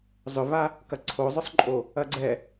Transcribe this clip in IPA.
zˤʏva | kɐǀʰozˤʏsˤǃʼo | ɐɡ͡ǀɛ

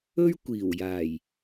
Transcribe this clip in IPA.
ɵ˥ɥ kʷiː˨˩wjaː˨˩j

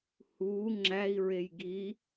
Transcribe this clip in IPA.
huː ŋ͡ǁæi̯ɹej ɡi

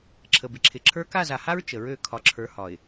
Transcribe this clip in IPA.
ǁʰə˨bɪ˨ǁʰɪ˨ ǁʰə˞˦ ka˦˨za˨ha˦ɹ t͡ʃə˨ɹø˦˨ kʰɒ˨ǁʰə˞˨˦hɒ˨ɪ̯

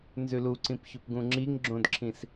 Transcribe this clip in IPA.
nzʉluǀĩpçɵp ɡũŋ͡ǁiŋɡ͡ǁõdǁʰĩs

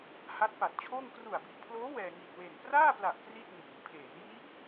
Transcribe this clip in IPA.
ha˦˥t̚pa˨˩t̚t͡ɕʰoː˥˩ŋ kru˨˩a̯bi˨˩ʔpʰloː˦˥ wɛː˧ ŋi˨˩t̚we˨˩npraː˥˩pla˨˩ʔ kri˥˩t̚niː˩˦ŋ pʰeː˩˦njiː˦˥p̚

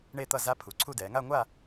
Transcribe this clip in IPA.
ɳe˥˧t̪ʌ˥˧ za˦˥pʰu˩˥ǀʰu˥˧ dɛː˩˧ŋa˥˧ŋʷa˥˧

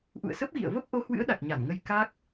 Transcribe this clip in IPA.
ʔṵ˧˨ə̯sə˦˥p̚ɣḭ˧˨ə̯və˦˥p̚ ʔo˨˦hwɨ̰˧˥ə̯ɗa˨˩k̚ ɲa˧˩nŋə˧j ka˦˥k̚

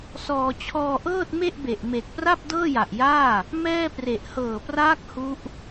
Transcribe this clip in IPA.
sɔː˧ t͡ɕʰɔː˧ʔɤː˥˩t̚me˥˩ʔbe˨˩ʔ me˨˩k̚pra˥˩p̚ dɤː˥˩ja˨˩ʔjaː˥˩ | mɛː˥˩pre˨˩ʔ hɤː˨˩praː˦˥k̚ hu˦˥ʔ

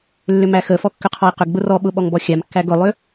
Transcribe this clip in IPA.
lːʏmæxəfɔ kːʏqʰɔi̯qʏɡɡ͡bʊ rɔɓʊ ɓɔŋbɔxʲamkːæɡ ʊlˠʏ

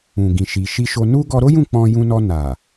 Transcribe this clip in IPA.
ũ˨ɡĩ˨ʃi˨ ʃi˧ʃo˧ nu˦ ɡɔ˧ɾo˦jũ˦˨ k͡pɔ̃˧jũ˧nɔ˧ na˨

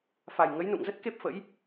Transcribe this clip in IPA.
fa˨˩jŋə˨˦jnṵ˧˨ŋzə˦˥t̚ ke˦˥p̚fə̰˧˥j

